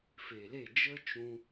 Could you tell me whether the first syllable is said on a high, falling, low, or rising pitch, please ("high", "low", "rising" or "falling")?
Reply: low